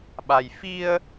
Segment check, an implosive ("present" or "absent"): present